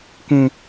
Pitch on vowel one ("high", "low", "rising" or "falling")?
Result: high